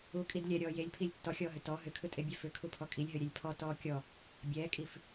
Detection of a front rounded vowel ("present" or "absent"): present